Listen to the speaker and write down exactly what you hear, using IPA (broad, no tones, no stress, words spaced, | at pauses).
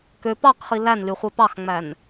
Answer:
kø pɑqχi lænlyχʷe pɑxŋ͡mæn